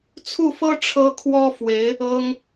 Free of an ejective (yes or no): yes